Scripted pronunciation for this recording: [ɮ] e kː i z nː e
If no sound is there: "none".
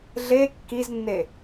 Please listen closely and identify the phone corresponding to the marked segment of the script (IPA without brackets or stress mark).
ɮ